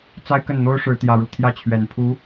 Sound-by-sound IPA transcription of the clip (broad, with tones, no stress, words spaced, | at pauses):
t͡sa˥ɪ̯kə˥˩nn̪o˥ʊ̯ ʂɻ̩˥t̪jä˥˧ɻu˥˧ t̪ʰjä˥˩t͡ɕʰɥɛ˨˩npʰu˧˥